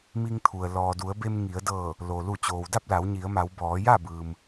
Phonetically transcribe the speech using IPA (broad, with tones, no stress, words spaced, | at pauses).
mi˧ŋt̪ʰu˩ə̯ lɔː˩du˩˧ə̯be˧m ŋi˩˧ə̯dɤː˧˩ | lo˩ lu˧˩t͡ɕoː˩wda˥˨p̚la˩˧w ɲi˩˧ə̯ma˩˧w bɔː˩˧ja˥˨ bɯː˩m